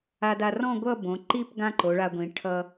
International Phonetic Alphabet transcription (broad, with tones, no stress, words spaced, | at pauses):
a˧da˧rɔ̃˥˧ ɡʷʌ˥˧ bõ˩˧ǃi˥˧p ɡã˥ǃo˩˧ɭa˧ɡʷĩ˩˧ ʈʰʌ˧